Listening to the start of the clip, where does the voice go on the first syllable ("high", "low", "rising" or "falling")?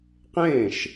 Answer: falling